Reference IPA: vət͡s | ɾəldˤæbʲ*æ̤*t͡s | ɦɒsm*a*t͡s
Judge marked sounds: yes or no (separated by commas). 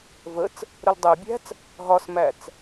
yes, no